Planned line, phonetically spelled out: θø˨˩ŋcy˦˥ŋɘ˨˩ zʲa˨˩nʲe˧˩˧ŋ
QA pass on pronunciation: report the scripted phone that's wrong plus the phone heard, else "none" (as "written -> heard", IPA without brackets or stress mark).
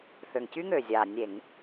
ɘ˨˩ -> ø˨˩